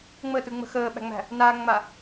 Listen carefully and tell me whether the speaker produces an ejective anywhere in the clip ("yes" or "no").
no